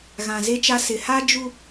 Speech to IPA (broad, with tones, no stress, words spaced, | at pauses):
ɣã˨ze˦t͡ʃa˦ sɪ˨ha˦d͡ʒu˦